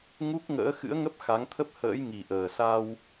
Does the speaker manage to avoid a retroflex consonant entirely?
yes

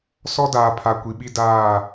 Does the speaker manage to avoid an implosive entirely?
no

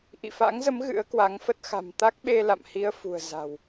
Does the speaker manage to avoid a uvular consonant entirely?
yes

